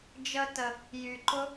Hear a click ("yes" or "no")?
yes